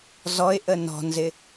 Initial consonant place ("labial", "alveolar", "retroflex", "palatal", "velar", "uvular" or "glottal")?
alveolar